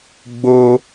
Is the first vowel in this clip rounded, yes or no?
yes